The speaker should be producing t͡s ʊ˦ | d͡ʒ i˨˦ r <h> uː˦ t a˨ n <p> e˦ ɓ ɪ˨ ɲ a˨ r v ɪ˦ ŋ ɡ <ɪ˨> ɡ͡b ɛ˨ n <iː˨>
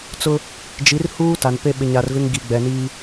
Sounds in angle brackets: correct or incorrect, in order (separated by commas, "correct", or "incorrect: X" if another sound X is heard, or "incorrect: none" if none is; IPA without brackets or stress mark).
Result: correct, correct, incorrect: i˨, incorrect: iː˦